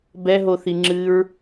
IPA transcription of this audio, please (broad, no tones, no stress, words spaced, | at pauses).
bɛɦoθiŋ͡ǁɨːɹ